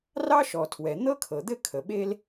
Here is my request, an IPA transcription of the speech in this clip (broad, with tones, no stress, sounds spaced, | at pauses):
r ɑ˥ ʃ ɔ˩ tʰ w ɛ˩ n̪ ɤ˥ kʰ ɤ˩ d̪ ɘ˥ kʰ ə˩ ɓ e˥ l